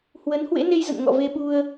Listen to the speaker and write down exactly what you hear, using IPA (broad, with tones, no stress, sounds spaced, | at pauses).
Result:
h w ə˨˦ n h w ḛ˧˥ n e˧ j z ə̰˧˨ n ŋ ɔ̰˧˨ v e˧ ɓ u˧ ə̯